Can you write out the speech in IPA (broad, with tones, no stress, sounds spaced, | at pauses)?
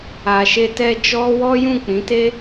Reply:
a˨ ʃ e˧ t ɛ˧ d͡ʒ ɔ˦ w ɔ˦ j ũ˦˨ k͡p ĩ˨˦ t e˦